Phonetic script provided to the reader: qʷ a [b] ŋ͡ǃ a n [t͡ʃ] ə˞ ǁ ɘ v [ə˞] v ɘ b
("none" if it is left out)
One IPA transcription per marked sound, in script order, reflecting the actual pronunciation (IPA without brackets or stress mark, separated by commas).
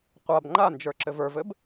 b, d͡ʒ, ə˞